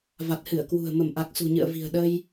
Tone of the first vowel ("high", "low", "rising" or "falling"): low